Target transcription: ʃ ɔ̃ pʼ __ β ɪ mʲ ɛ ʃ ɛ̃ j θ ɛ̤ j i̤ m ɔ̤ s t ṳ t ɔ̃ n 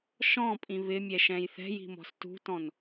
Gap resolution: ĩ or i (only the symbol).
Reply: ĩ